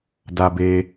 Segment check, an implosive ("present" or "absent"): absent